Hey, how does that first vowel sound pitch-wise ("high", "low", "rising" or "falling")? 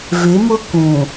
rising